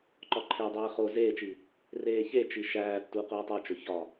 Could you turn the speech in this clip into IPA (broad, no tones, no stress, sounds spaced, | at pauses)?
ǃ ɒ ǃʰ e dˤ eː χ o z eː t͡ʃ iː | r eː ç e t͡ʃ i ʃ æː tː u q uː tˤ æ t͡ʃ o ç ɒ